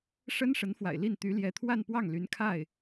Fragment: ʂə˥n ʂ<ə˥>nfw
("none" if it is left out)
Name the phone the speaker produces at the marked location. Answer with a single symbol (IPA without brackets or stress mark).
ə˧˥